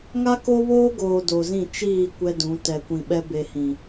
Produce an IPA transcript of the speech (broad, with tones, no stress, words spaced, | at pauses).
ŋa˦ko˦βoː˦ɡoː˨ do˨zĩ˦˨ t͡ʃiː˦˨ kʷɛ˦dũ˨˦ tɛ˨kʷĩ˨ɓɛ˦ be˨ hĩ˨